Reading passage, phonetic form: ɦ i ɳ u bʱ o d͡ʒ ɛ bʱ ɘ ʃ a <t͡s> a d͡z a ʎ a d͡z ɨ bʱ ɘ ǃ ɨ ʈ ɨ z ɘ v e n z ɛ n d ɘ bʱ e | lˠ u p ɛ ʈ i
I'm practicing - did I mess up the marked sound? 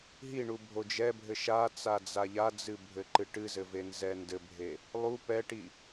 no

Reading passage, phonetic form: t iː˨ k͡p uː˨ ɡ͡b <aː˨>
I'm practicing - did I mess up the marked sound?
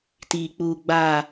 no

